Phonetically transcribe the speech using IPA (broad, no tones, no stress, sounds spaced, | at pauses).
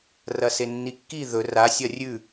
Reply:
r ɐ s e nː i kː i ð ɵ r a sʲ ɐ rʲ ʉ